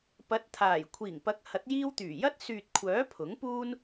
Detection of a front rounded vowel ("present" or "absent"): present